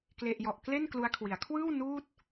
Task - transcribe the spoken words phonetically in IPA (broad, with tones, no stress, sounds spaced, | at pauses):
k l e˥˩ ʔ j ɔ˦˥ ʔ k l e˥˩ n k l u˦˥ a̯ kʰ w i˩˦ a̯ kʰ w ɯː˥˩ w n uː˥˩ t̚